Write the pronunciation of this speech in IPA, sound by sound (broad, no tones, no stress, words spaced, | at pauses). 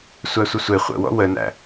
sʷæsʷəsʷe χʷə̰wɔ̰ wənæ̰